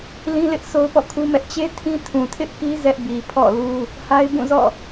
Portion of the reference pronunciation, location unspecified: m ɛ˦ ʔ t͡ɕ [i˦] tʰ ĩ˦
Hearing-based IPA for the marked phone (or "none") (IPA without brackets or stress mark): e˦